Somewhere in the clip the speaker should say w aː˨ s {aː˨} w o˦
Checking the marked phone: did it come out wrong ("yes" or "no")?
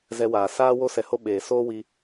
yes